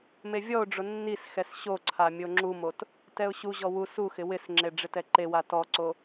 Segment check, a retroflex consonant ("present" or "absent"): present